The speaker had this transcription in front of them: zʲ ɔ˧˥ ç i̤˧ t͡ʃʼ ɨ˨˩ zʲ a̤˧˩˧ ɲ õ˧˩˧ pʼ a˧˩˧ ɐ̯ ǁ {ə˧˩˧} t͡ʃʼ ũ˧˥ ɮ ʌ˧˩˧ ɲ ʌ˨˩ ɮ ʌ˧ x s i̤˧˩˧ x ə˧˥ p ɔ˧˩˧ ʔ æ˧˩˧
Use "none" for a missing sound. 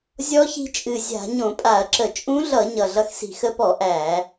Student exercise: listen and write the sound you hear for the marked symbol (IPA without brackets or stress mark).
ə˧˩˧